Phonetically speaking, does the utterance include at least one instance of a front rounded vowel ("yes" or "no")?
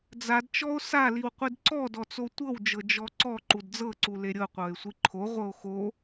no